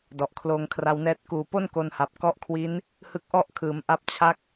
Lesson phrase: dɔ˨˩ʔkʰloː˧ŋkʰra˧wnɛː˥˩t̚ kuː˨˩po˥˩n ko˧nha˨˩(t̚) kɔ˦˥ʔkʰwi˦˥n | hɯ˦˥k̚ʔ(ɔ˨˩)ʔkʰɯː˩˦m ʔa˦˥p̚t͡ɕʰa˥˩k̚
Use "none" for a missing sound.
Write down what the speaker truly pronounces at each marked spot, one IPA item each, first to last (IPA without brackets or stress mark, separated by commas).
p̚, ɔ˥˩